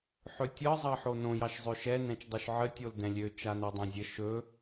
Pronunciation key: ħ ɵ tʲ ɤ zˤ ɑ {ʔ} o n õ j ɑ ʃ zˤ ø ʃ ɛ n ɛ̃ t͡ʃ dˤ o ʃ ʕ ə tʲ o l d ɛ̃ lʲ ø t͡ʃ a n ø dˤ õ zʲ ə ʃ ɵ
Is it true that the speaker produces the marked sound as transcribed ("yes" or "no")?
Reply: no